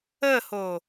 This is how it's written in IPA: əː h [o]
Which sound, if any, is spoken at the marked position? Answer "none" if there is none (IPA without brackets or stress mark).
oː